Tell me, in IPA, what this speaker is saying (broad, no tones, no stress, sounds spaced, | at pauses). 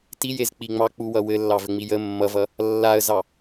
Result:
t i j e z k͡p i ŋ͡m ɑ k͡p u w ʌ w ɘ lː ɑ v ɘ ŋ͡m i j ə mː ʌ v ʌ | lː a ə̯ z ɑ